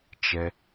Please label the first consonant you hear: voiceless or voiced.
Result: voiceless